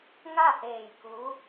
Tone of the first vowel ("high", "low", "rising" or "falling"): falling